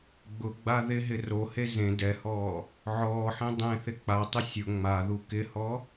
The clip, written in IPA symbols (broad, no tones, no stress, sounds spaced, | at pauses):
ɡ͡b ʊ ɡ͡b a ð ɪ ɦ ɪ r o h e z ẽ d ɛ h ɔː | ʕ ɔː ħ ẽ dˤ ẽ θ ɪ k͡p a tˤ ɪ sʲ ʊ ŋ͡m a ð u k ɪ h ɔ